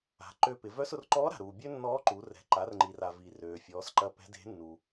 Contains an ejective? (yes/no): no